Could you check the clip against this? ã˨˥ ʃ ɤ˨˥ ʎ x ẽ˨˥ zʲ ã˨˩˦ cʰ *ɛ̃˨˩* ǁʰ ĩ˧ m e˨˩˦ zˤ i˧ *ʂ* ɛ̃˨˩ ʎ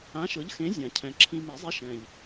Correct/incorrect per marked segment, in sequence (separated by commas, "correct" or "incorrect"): correct, incorrect